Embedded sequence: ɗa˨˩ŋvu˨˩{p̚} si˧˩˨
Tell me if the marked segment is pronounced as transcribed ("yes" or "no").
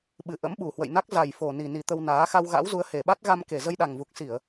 no